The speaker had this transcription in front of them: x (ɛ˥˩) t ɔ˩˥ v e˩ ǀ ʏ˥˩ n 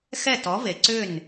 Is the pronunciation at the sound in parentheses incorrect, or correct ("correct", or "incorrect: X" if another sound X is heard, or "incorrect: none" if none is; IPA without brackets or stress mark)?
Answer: correct